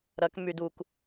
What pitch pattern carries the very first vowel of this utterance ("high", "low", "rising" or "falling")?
rising